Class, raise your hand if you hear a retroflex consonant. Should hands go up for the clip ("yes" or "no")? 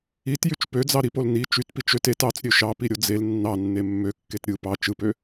no